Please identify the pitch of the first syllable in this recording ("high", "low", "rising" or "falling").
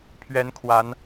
rising